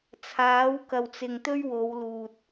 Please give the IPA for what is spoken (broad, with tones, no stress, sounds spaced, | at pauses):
t͡sʰ aː˨˥ w k ɐ˨ w t͡s ɪ˨ ŋ t̪ ɵ˥ ɥ w o˨˧ w l uː˨ t̚